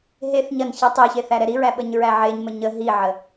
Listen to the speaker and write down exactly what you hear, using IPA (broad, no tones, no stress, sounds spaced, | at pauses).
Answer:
ɦ e θ ɲ ɐ n ç ɛ tˤ e ç e θ æ ɾ ɛ ɾ i ɹ æ ɓ ə ɲ ɹ æ ʕ e ɲ m ə ɲ ə ɦ i ʕ ə